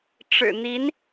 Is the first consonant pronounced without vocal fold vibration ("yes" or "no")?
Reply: yes